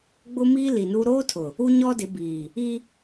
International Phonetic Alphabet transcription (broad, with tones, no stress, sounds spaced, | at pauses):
ɡ͡b ʊ˦ m i˦ l i˨ n u˦ ɾ oː˦ tʰ ʊ˨ | u˦ ɲ ɔ˦ d ɪ˨˦ b iː˨ | i˦